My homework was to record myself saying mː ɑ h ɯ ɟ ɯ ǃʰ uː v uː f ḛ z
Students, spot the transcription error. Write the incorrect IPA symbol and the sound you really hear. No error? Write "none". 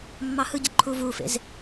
none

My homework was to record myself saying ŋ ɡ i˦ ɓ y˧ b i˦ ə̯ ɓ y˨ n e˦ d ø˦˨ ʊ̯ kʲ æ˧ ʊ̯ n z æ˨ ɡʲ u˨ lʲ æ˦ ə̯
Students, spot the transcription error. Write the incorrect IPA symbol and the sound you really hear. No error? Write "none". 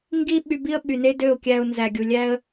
none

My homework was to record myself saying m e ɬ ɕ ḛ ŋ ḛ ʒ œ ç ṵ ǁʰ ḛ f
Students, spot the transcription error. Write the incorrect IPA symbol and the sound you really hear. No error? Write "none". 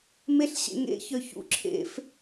ʒ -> ç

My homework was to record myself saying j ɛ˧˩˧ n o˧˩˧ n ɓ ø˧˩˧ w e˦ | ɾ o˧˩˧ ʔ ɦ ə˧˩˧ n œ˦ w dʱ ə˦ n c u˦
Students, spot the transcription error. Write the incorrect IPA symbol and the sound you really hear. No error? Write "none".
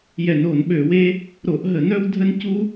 none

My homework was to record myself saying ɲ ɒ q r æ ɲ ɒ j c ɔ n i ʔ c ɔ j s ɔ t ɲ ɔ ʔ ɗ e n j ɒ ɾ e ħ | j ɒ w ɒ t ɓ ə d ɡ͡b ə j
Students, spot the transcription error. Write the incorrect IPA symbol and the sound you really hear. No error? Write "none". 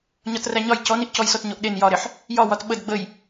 q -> t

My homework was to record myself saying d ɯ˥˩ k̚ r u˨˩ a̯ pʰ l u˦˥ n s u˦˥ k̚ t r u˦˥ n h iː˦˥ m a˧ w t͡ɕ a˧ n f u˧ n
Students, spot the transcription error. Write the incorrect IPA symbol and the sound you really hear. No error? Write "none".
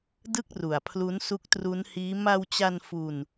none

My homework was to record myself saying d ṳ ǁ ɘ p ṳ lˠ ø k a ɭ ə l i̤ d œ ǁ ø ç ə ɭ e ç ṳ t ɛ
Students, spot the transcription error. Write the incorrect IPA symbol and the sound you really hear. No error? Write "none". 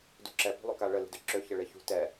ɘ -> ɛ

